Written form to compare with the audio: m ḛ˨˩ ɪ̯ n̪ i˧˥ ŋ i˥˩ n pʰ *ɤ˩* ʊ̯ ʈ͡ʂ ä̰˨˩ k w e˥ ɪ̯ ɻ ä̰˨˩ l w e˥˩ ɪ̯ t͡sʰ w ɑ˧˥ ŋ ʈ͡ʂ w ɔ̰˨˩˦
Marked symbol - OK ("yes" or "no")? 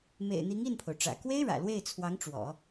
no